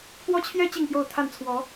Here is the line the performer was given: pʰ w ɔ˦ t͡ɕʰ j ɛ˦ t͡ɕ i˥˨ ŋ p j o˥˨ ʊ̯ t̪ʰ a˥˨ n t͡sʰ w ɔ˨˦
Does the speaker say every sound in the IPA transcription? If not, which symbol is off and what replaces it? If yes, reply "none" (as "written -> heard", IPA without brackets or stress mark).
none